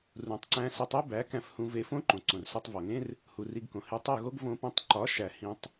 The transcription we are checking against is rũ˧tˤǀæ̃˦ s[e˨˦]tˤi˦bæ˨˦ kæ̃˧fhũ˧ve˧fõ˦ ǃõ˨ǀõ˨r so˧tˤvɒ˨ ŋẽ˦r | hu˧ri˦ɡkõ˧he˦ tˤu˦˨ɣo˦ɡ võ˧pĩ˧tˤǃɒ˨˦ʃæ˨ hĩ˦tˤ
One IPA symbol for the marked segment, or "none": e˧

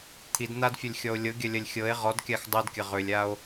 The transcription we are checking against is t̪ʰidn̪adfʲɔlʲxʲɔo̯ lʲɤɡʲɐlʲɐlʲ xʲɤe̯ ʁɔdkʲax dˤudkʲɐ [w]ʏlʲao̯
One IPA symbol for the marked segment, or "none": ʁ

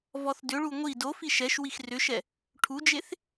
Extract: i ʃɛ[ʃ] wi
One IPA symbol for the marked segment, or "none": ʃ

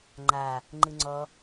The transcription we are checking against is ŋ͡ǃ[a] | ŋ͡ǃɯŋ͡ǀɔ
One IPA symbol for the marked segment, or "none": a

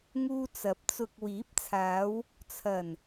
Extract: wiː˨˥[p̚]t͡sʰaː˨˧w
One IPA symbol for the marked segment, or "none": p̚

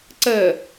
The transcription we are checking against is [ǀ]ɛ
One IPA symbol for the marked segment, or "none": ǀ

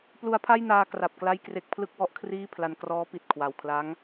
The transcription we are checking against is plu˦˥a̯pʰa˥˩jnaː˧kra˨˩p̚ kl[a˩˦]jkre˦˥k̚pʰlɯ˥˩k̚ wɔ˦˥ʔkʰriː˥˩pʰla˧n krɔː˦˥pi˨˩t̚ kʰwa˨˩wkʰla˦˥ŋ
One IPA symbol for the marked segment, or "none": a˥˩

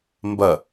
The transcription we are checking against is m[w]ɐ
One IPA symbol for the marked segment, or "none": b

